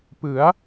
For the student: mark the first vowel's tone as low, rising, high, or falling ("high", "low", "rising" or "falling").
rising